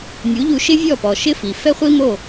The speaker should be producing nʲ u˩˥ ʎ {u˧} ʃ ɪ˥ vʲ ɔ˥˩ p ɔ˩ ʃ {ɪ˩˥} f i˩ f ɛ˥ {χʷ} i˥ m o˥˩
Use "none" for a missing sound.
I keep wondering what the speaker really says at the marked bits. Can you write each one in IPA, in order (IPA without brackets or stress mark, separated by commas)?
u˧, ɪ˥, χʷ